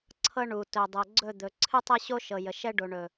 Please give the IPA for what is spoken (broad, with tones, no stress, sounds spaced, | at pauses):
ǀʰ ɤ˦ ɳ u˨ t ɵ˨ dˤ ə˨ ɡ͡ǀ ɵ˦˨ d̪ ɵ˨ ǀʰ ɨ˦ tˤ ɤ˦ ɕ o˦ ʃ ɤ˨ j ə˨ ʃ ɛ˦ ɖ o˨ ɳ ɵ˨